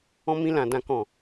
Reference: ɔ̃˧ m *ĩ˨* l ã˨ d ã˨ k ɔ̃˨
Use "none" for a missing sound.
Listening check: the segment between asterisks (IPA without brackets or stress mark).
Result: ĩ˧